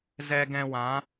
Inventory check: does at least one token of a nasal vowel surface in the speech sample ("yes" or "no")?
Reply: yes